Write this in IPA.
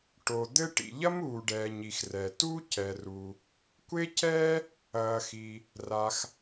ʈ o˩ d̪ ɘ˥ ʈ ḭ˩ ʎ ɐ˥ m uː˩ ɖ ɛː˩ ɲ i˩ x r ɛ˩ t u˥ c ɛ˩ r u˩ | kʷ e˥ c ɛː˥ | ɐː˩ x i˩ | r a˩ x

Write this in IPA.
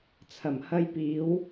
t͡sʰ ɐ˨˩ m h ɐ˧ j p iː˨˧ w

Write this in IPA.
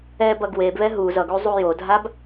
ɛ b ʌ ɡ w e b β ɛ ɦ u z ʌ ɡ u zˤ u j o dʱ a b

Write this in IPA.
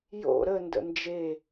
j o̰ ɾ ə n d ə̰ n d͡ʒ e

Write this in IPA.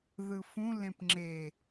ð ɯ f ũ l ẽ p ŋ͡ǁ e

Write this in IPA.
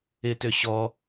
ɪ t ø ɕ ɔ

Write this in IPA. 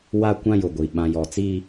w a˦ kʷ ã˦ j ʊ˨ ɡʷ i˨ ɓ ã˨ j ɔ˨ t͡s iː˦

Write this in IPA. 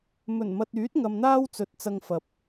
m ɵ˨˩ n m ɐ˨ t̚ yː˨˥ t̚ ŋ ɐ˧ m n̪ aː˥ w t͡s ɵ˨˥ t̚ t͡s ɐ˧ ŋ f ɐ˨˥ p̚

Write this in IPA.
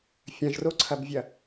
fʲ ɐ̃ ʒ r o ǀʰ ɐ b vʲ ɐ

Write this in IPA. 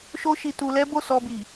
ʃ o˦ ʃ i˧ t u˧ l ɛ˦ b o˦˨ s ɔ˧ b i˨

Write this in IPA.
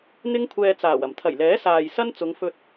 n̪ ɪ˥ ŋ kʷʰ ɛː˧ t͡s aː˨˩ w ɐ˨˩ m t̪ʰ ɐ˨˩ j l ɛː˨˥ s aː˨ j s ɐ˥ n t͡s ʊ˨˧ ŋ f ɵ˧ t̚

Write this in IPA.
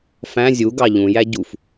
f æ̃ zʲ u ɡ ɑ ʎ ũ j æ ɟ u f

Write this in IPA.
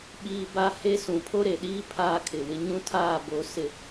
ɓ iː˦ b a˦ h e˦ s ũ˨ pʰ o˦ ɾ e˨ ɗ iː˦ pʰ aː˦ kʰ ɪ˨ w ɪ˦ ɲ ũ˦ tʰ aː˦˨ b o˨ s ɪ˨

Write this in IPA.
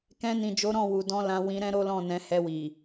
k ɛ̃˧ n ĩ˨ d͡ʒ o˨˦ ɾ ɔ̃˦˨ w u˨ d ɔ̃˧ l ã˧ w ĩ˧ ɾ ɛ̃˦ ɾ o˦ l ɔ̃˦˨ n ɛ̃˨˦ h ɛ˧ w i˨

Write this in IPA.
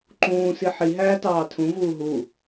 ǃ ũː s i ħ i ɦ æː t ɑː tʰ ũ v uː ɦ u

